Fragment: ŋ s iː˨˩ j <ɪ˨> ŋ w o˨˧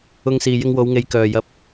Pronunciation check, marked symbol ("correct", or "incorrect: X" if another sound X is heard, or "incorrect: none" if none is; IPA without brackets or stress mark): incorrect: ɪ˧